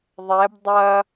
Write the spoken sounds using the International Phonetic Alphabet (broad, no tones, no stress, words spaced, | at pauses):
ðˤɛb dˤɐ